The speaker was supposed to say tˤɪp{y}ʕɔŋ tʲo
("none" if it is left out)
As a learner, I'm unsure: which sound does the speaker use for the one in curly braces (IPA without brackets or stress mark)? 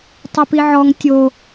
i